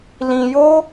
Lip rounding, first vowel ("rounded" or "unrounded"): unrounded